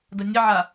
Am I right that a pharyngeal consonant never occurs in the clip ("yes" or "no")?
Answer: no